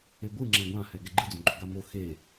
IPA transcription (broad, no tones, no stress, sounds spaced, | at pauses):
e ɡʷ ɯ ŋ͡ǁ ɛ̃ ɡʷ ã h ɛ ɡ ɛ ɡ͡ǃ ɯ d͡z õ ɡ͡ǃ o ɡ a m o x e